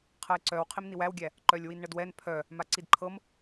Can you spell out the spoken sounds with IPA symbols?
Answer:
qʰ ɤ e̯ ǀ œ w qʰ i m n i w æ w ɡʲ æ | ǃ œ lʲ w i n ɳ ə d w ɛ n pʰ œ | m a ǀ i d ǃʰ ɤ m

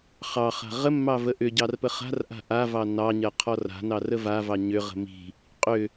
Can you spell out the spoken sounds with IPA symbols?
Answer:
χ ɑ χ a̤ ʁ ə mː ɑ v ə ʔ ʏ ɟ ɑ r p ə χ a̤ r ʔ a̤ ʔ a v ɑ n ɑ ɲ ɜ qʰ ɔ r a̤ n ɑ r ə v a v ɑ ɲ ʏ ʁ ə̤ m i̤ | qʼ ʏ

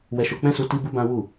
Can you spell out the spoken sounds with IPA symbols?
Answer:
w ɛ˧ ʃ o˧ k͡p ɛ̃˦ s u˧ t i˦ b u˦ b ã˦ w u˦˨

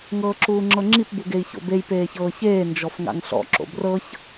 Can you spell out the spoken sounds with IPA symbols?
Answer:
ŋ ɤː ǁ uː ŋ͡ǁ ɤ ŋ͡ǁ i p b u ɡ e i̯ ç o̰ b e j p eː ç ɤː ç eː n d͡ʒ ɔ f ŋ a̰ ŋ ɬ ɔ̰ ǁ o̰ b r ɤ ç

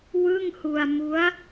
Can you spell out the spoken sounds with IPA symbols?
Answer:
w ɯ˥˩ ŋ h u˧ a̯ m u˦˥ a̯

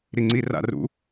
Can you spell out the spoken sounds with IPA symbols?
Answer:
ɾ i ŋ͡ǀ i r a̰ r ṵ

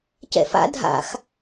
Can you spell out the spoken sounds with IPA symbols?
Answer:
c ɛ̰ f a̰ dʱ a̰ x

